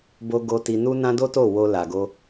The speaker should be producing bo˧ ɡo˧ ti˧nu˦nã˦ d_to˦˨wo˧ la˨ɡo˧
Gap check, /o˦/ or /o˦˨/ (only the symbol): o˦